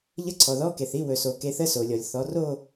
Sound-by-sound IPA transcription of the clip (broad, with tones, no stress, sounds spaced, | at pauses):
ʎ ə˧˥˧ ǀʰ ɔ˨ ð ɔ˧˥˧ k e˨ θ i˧˥˧ w ɵ˨ s o˨ k e˨˦ θ ə˧˥˧ s o˨ lʲ ɔ˨ lʲ θ ɔ˨˦ r o˥˧